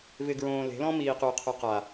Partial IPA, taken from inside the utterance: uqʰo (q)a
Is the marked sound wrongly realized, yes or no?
no